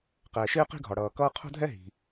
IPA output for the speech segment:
qɛː˩ʃɪː˥qi̤˥ɡʱɒ˩ ɽʌː˩kʌː˥ qʰo̤˥dʱɛ˥ ɦi̤˩

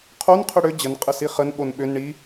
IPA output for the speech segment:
qʰon qʰʏɽʏ d͡ʑən qʼəsiχən ɓonɓʏn ɳi

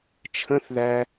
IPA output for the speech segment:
t͡ʃʰə̃θðæ

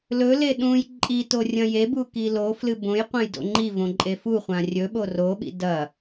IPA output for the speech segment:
lɵle ɗũj ǃʼito rʲɐ̃jebu kiloflɨ bõjqʷɐ̃j do̰ŋ͡ǃivõ ǃʼefuχʷã rʲɵɓo roɓḭ dɐ

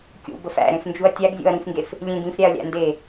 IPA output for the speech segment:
kʲṵbəf æ̰ɾẽfnd͡ʒuɐ̯ tʲæɡzʲṵɐ̯ ɾĩfŋɡef | lʲẽɡ ĩfɾʲæɐ̯lʲæ̰ nde

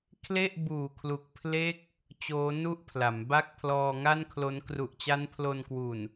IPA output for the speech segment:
kʰle˥˩ʔ buː˨˩kʰlu˨˩k̚pʰle˦˥k̚ | t͡ɕoː˦˥nu˥˩ʔpʰla˩˦mba˥˩k̚ pʰlɔː˧ŋa˥˩nkʰlo˦˥n kru˨˩ʔt͡ɕa˦˥npʰlo˧nkwu˨˩n

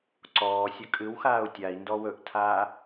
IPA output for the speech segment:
ǀɔːsʲɵ kʼɨwxaːu̯ tʲai̯ndɔ wɵʔtʰaː

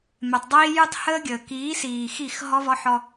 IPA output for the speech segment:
mɛ˨tˤdˤiː˦ jʉ˦tˤhəː˦ɡʲəː˨ kiː˨˦siː˨xi˦˨x ɦɔ˦vɔ˦ħɔ˦

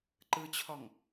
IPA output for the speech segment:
ǃɯt͡ɕʰɔŋ

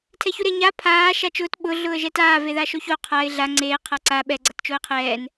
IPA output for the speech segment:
tʰɛçuɾe ɲa pʰaː ʃat͡ʃʊːt ɓʊː ɮʊːə̯ʒɛtaː veðaʃoço qʰaɪ̯ ɮa ŋ͡ǀeː qʰaǀa ɓɛ ɡ͡ǀatt͡ʃoɪ̯qʰɛːn

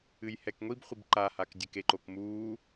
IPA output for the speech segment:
ɨjhɛkŋʷibχʷib ǃahak dʲɘkeǃokmuː

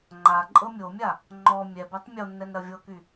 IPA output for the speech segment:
ŋ͡ǃa ǃʼɤmʲomʲa | ŋ͡ǃɔ mʲɛbɛtˤ mʲonːɛn ɾɐvʲɤky

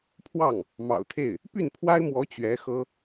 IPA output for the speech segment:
pʰwɑ˥˩ŋ | mɑ̰˨˩ʊ̯t̪ʰe˥˩ɪ̯ | py˥˩npʰwa˥ɪ̯mwɔ˧˥ t͡ɕɥɛ˧˥xɤ˥

